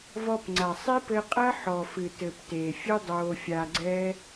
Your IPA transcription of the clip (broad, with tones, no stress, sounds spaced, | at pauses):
v ɔ˧ p ŋ͡ǀ a˨ sˤ i˦ p ɘ˧ qʼ ɐ˦ ħ ɔ˨ f ɨ˨ t ɘ˨ p t eː˨ fʲ ɨ˦ dˤ oː˧ fʲ a˧ ɡ͡ǀ ɛ˦